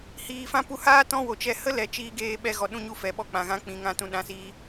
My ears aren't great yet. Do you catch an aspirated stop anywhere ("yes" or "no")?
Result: no